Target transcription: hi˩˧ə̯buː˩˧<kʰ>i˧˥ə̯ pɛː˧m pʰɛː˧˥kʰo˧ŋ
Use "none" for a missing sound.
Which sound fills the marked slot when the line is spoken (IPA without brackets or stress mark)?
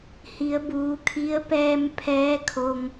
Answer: kʰ